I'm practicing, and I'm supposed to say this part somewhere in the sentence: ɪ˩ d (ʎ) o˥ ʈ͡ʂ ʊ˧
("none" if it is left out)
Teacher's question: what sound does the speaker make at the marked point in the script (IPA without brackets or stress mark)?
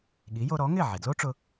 l